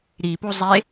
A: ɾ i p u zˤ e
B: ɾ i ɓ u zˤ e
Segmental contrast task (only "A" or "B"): A